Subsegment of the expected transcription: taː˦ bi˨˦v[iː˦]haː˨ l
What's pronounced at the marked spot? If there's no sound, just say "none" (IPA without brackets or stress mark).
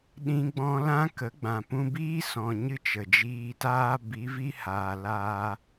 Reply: i˦